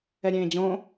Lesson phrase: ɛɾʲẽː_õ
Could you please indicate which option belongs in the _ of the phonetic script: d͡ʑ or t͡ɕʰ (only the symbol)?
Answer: d͡ʑ